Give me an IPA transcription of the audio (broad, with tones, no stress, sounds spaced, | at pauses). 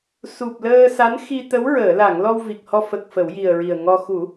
s u˨˩ p̚ l əː˧ s a˧˥ n x i˧ t̪ ə˧˥ w ɹ əː˨˩˨ l a˨˩˨ ŋ l ɔ˧ w v i˨˩ k̚ h ɔ˧ f ə˨˩ k̚ f ə˨˩˦ w j i˨˩ ə̯ ɹ i˨˩ ə̯ ŋ ɔ˧ x u˨˩˦